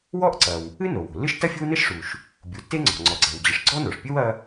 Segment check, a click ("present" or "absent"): present